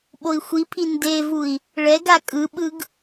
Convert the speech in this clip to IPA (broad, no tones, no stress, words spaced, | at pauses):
ɓoi̯xʷipʰi ndevui̯ | ɭɛɡa kʼɯɓɯɡ